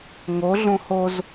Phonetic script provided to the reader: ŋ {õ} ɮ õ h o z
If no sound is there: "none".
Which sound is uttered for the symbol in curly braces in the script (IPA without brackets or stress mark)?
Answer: o